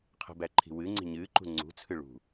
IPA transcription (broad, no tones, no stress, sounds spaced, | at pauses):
qʰ ə̤ b æ ǃʰ i̤ w ɨ ŋ͡ǀ i̤ ɲ ɨː ǃ ṳ ŋ͡ǀ ṳ t͡sʰ ɨ ɭ ṳ